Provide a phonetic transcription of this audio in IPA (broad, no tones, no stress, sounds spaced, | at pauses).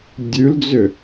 dʲ ʉ l d͡z ʏ